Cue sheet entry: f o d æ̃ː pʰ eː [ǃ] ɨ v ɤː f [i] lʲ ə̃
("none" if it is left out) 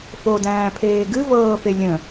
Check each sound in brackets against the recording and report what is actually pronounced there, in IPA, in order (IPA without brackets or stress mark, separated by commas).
ɡ, e